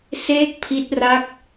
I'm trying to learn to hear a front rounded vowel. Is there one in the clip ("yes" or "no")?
no